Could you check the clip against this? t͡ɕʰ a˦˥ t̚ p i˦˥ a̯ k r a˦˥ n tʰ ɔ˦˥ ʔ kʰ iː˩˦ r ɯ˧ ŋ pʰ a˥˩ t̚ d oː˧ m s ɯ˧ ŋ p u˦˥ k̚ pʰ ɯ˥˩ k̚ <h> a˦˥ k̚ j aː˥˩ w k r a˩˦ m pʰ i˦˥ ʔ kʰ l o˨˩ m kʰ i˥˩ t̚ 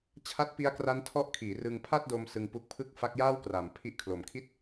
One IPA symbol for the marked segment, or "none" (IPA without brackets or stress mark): f